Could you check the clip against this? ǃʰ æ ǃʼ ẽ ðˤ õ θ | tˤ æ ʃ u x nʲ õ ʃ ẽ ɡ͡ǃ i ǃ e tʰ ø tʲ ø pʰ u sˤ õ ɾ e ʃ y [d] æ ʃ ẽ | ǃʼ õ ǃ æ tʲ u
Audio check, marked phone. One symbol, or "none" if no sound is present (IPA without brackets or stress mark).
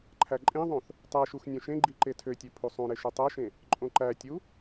tˤ